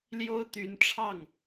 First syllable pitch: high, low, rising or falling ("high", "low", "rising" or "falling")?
high